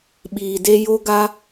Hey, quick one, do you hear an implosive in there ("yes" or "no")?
yes